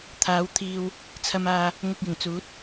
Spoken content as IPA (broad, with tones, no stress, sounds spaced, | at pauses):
t̪ʰ aː˨˥ w t̪ʰ iː˧ w | t͡sʰ ɐ˧ m aː˧ | ŋ ʊ˧ k̚ j ɪ˨˩ ŋ t͡s uː˨˥ t̚